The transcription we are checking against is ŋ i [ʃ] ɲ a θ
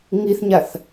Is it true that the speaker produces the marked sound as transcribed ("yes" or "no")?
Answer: no